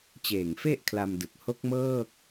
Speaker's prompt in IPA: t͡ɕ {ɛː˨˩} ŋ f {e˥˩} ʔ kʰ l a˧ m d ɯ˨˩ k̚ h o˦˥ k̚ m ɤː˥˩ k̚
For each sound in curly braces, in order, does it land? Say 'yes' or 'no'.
no, yes

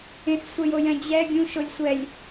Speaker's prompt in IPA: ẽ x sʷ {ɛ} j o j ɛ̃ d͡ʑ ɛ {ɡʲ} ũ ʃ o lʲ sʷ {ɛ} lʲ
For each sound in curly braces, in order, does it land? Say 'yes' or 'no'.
yes, yes, yes

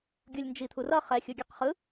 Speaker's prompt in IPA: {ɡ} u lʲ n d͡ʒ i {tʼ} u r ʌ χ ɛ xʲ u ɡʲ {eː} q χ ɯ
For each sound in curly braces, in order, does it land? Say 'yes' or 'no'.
no, no, no

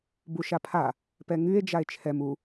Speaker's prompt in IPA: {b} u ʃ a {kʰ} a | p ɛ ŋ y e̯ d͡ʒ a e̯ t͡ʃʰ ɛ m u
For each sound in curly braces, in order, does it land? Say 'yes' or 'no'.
yes, no

